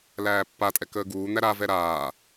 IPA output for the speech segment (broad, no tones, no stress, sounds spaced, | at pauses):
l æː pː a tʼ ɛ k əː ɡ uː n̪ æ ɾ a v ɛ ɾ aː